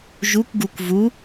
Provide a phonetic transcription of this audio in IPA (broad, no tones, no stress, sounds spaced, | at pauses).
ʒ u kʷ ɡ u kʷ v u